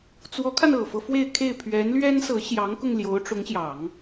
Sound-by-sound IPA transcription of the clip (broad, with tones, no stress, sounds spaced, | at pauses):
t͡s w ɔ˧˥ kʰ a˧ n ɤ˨˩ f ɤ˦ f w e˥˧ ɪ̯ kʰ e˥˩ ɪ̯ pʰ ɥ ɛ˧˥ n l ɥ ɛ˥ n s ɤ˧˥ ɕ j ɑ˧˥ ŋ k ʊ˧ ŋ l j o˧˥ ʊ̯ ʈ͡ʂ ʊ˧˥ ŋ ɕ j ɑ˨˩˦ ŋ